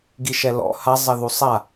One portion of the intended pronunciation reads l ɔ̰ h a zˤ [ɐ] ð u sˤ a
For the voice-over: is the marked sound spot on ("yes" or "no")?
yes